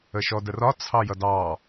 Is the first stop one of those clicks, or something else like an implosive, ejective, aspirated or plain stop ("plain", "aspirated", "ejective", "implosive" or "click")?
plain